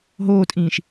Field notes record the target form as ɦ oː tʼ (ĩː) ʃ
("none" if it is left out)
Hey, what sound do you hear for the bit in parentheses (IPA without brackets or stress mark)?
ĩː